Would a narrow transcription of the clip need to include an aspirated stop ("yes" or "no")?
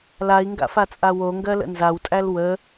no